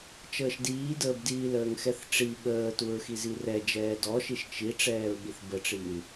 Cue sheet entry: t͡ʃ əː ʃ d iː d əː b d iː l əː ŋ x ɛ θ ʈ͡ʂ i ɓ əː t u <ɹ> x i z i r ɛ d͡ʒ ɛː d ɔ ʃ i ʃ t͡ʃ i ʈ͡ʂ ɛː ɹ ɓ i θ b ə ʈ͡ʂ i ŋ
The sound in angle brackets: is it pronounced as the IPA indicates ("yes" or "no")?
yes